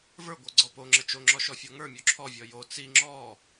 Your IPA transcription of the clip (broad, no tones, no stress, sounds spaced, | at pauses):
v ə˞ ɡʷ ə˞ ɡ͡ǀ ɔ p o ŋ͡ǁ ə t͡ʃ o ŋ͡ǁ ɔ ʃ ɔ fʲ ɔ ŋ ə˞ mʲ o ǁʰ ɔ vʲ ɔ j o t͡s i ŋ͡ǁ ɔ